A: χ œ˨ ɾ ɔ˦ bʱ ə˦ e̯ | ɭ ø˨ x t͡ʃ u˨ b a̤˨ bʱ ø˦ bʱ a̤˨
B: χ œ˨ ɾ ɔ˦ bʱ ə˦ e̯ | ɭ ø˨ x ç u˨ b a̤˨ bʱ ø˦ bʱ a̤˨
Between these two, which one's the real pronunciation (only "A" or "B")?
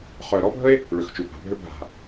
A